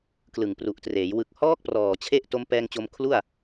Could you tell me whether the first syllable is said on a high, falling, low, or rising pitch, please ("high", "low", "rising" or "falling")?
low